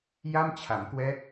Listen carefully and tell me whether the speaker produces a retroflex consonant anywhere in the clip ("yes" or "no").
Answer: no